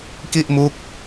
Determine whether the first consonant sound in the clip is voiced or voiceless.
voiceless